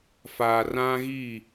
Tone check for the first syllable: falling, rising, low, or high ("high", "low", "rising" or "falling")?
low